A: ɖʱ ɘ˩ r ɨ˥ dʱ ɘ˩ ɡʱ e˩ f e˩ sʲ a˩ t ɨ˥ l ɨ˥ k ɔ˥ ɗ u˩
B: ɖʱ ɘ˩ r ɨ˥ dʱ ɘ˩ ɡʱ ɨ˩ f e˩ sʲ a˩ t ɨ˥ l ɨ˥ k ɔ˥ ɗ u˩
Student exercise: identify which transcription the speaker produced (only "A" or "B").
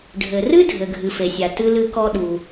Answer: B